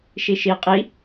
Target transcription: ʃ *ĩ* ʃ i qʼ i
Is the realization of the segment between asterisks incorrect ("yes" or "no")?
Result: yes